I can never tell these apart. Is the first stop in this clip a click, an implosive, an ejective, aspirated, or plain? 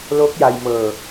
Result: plain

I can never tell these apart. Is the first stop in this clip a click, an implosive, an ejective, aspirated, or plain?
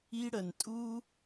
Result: ejective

